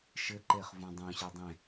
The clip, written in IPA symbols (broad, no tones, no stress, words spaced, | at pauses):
ʃɘǃeχ vũdˤũɕe dˤẽ